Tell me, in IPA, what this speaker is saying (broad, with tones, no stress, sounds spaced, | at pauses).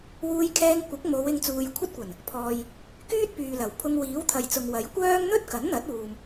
w uː˧ j kʰ ɛː˧ ŋ kʷ ɪ˨˥ k̚ m o˨˧ w ɪ˧ ŋ t͡s uː˨ j kʷʰ ɐ˥ t̚ kʷ ɐ˨˩ n | pʰ ɔː˨ j | k yː˥ t̚ p yː˨ l ɐ˨˩ w pʰ ʊ˧ ŋ w iː˨˥ w t̪ʰ ɐ˨ j t͡s ʊ˨ ŋ w ɐ˨˥ j kʷ œː˥ ŋ n̪ ɵ˥ t̚ k ɐ˨˥ n n̪ ɐ˨˥ t̚ uː˨ m